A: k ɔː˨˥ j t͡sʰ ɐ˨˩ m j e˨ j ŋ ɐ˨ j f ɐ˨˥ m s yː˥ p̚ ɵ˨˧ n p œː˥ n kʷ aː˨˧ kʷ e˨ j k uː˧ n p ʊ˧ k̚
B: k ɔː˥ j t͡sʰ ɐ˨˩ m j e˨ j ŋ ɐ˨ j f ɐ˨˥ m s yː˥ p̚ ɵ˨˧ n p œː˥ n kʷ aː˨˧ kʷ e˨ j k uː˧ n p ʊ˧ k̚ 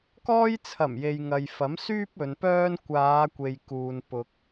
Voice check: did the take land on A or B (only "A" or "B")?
B